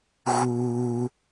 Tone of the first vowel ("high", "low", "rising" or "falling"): high